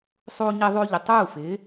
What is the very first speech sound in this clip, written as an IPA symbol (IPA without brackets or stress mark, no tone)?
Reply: sˤ